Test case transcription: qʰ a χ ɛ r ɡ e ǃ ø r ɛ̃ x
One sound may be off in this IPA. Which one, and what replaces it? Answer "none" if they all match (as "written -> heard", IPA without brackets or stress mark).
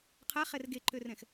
none